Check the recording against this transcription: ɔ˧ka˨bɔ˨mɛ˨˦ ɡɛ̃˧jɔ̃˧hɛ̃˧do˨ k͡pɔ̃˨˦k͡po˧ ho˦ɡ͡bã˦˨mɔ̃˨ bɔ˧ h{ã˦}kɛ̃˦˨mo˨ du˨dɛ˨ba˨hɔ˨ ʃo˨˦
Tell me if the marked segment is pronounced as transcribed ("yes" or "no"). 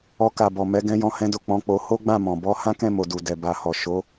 yes